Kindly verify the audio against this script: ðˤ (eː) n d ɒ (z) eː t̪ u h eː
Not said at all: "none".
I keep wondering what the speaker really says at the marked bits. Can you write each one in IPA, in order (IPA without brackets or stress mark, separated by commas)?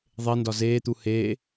e, z